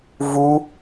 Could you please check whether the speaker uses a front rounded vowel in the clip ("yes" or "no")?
no